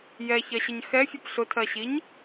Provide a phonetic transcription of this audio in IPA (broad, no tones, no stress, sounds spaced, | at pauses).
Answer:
j ɛ ç ɜ ɕ ə ɲ x ɛ fʲ ʊ p ɬ ʊ tʰ ɜ ɕ i ɲ